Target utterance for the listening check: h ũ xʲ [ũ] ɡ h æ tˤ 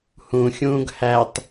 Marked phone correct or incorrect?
incorrect